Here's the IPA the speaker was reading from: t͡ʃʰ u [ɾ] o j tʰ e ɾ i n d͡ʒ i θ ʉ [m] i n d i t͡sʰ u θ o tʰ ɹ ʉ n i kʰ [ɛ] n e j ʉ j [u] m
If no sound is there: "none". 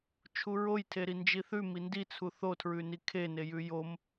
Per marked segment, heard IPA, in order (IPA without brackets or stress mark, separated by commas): ɹ, m, e, o